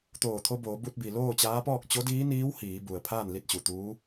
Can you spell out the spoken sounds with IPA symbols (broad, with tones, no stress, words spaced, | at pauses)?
t̪oː˧˩t̪ʰo˧boː˩˧ bu˧t̚bi˩ loː˥˨t͡ɕaː˧˥pɔː˥˨k̚ t͡ɕo˧˥diː˧˥niː˧˥w hiː˩˧ bu˩ə̯ pʰaː˥˨nli˧˥t̚t͡ɕu˩ t̪uː˧˥